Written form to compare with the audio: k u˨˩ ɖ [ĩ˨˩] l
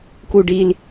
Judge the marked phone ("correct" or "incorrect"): incorrect